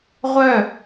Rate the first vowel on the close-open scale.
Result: mid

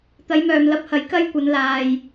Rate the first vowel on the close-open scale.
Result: open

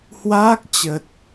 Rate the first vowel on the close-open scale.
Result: open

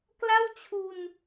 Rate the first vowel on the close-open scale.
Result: open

